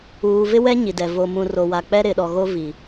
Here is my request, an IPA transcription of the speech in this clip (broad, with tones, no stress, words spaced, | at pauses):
uː˨ vɪ˦wɛ˦ɲi˨dɛ˨ vo˨mũ˨ ro˨wa˨ k͡pɛ˦ɾɪ˨ɗɔ˨ɣo˦ vi˨